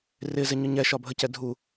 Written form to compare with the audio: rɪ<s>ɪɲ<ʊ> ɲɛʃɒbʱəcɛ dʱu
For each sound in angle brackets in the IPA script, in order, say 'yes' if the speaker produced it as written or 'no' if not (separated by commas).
no, yes